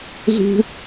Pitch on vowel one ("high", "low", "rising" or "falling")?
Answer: high